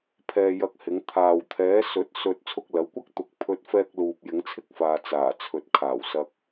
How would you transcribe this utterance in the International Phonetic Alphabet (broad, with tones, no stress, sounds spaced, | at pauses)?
pʰ ɛː˧ j ɐ˧ k̚ h ɪ˨˧ ŋ t̪ʰ aː˨ w t̪ʰ ɛː˨˧ s ɵ˨˥ t̚ s ɵ˧ t̚ t͡sʰ ʊ˧ k̚ l ɐ˨˧ w kʷ ɐ˥ k̚ t̪ ʊ˨ k̚ pʰ ɵ˧ t̚ f ɛː˧ k̚ l uː˧ p̚ j ɪ˨˧ ŋ t͡sʰ ɪ˥ k̚ f aː˨ t͡s aː˨˩ t͡sʰ ɵ˨ t̚ kʰ aː˨˩ w s ɐ˨ k̚